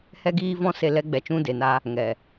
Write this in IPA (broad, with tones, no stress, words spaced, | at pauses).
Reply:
hɛ˦ɡiː˦vɔ̃˦se˧ lɛ˧ɡ͡bɛ˨t͡ʃũ˧ de˨na˧ | ŋɛ˨